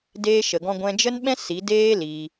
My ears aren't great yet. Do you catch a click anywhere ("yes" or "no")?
no